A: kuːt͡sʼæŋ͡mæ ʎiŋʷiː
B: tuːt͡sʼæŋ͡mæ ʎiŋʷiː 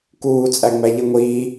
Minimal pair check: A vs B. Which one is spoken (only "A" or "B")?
A